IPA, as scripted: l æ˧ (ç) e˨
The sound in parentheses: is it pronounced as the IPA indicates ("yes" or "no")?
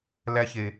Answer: yes